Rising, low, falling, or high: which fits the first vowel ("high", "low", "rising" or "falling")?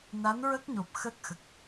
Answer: rising